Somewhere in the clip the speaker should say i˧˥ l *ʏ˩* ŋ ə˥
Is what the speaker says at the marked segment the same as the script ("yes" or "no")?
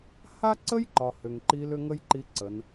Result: no